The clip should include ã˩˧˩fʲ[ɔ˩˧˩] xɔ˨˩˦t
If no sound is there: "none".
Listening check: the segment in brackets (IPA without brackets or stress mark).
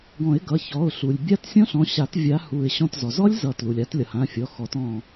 ɔ˩˧˩